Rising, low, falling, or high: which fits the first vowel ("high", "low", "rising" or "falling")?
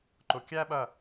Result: low